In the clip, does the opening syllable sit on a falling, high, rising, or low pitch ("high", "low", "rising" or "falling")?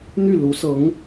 falling